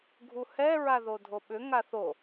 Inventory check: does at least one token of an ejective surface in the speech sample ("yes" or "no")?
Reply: no